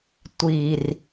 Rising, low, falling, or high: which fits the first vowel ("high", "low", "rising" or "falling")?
low